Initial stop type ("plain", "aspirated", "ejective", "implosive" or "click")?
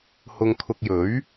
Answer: aspirated